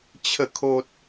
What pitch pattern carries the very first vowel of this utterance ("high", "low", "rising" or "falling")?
falling